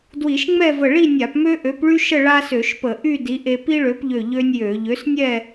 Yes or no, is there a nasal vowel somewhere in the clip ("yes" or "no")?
no